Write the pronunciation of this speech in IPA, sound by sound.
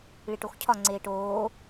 ɭiʈoxcʰɒ ŋ͡ǀeːʈoː

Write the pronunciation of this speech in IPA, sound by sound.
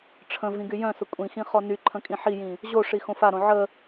ʈ͡ʂʰə̃ vĩɡyjœ̃sə kʷʼĩxĩ χɔnyǃʰə̃ kʼĩħijĩ | ʑoʂi xõfaɾõ ʕə

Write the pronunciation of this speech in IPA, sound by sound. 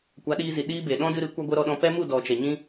kʷa˨˦ɗiː˧zi˨ ɗiː˦be˨ ɗɔ̃˦dɨ˧ɾɨ˨˦ kʷa˦ ɡʷə˦ɾɔ˧ɗɔ̃˧ pɛ˦mu˦˨ dɔ˨t͡ʃɛ˨ ɲĩ˦

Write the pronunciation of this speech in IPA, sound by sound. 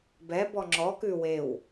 bɛbɔ ŋ͡ǁɔ kʉ wew

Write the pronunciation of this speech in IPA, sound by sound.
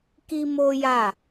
ki˦mo˦ja˦˨

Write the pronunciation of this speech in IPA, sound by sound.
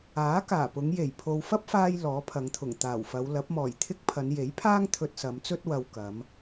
aː˨˥kaː˨˩pʊ˨˧ŋje˨˩j pʰo˨wfɐ˥p̚faː˧j lɔː˨˥pʰɐ˨˧ŋt̪ʰʊ˨˩ŋ t̪aː˨˩wfɐ˨˧w lɐ˨˥p̚mɔː˨˩jt̪ʰɪ˥k̚pʰɐ˨˧n je˨˥jpʰaː˥ŋ t̪ʰɵ˧t̚sɐ˨˧mt͡sɵ˥t̚ wɐ˧wkɐ˨˧m

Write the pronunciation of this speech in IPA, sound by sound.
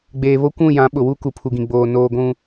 ɡ͡beː˨βo˦kʷũ˦˨ jã˨˦ɓʊ˨wu˦ ku˨pʰu˨ɡĩ˨ɡ͡boː˨ noː˨ɡʷũ˨

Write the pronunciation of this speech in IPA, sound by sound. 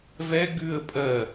vɛ ɡʉə̯ pʼɜ

